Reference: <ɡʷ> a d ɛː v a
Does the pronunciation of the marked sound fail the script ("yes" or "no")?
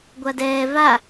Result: no